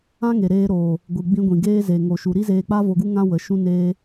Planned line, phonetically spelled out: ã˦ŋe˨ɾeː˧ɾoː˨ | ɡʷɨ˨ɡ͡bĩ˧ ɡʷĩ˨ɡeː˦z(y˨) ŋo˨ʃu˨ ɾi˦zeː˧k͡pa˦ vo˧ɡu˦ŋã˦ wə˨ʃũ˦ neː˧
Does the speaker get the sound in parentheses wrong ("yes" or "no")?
yes